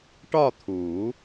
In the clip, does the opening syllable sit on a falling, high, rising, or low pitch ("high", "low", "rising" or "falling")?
falling